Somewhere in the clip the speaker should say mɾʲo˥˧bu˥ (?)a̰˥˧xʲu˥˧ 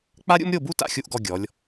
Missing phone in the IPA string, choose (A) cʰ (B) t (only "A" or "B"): B